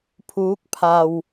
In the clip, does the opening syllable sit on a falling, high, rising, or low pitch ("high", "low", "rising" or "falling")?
rising